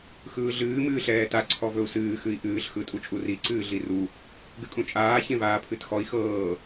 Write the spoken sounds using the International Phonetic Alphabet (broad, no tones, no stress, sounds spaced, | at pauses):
x ɯː ɮ ɨː m ɨː ɬ ɛː t a ǀʰ ɔ v ɵ u̯ s ɨː x ɨ i̯ ʔ ɨː ɬ x ɯ tʼ u t͡ʃʼ u r i ǀ ɨː ɮ i r u | ɡ ɨ kʼ ũ t͡ʃʼ aː ç ẽ v aː pʰ ɨ t x ɔ i̯ x ɤː